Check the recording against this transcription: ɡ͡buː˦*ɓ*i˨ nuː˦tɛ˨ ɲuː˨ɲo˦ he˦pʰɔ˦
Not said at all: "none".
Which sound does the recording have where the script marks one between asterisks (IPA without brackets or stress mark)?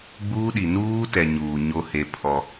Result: ɗ